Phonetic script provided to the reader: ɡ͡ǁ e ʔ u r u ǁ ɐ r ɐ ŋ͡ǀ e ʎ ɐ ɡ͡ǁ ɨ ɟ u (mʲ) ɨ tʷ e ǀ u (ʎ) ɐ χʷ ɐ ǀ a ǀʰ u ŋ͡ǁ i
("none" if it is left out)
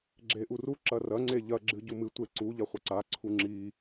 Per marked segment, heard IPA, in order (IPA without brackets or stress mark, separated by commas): m, ʎ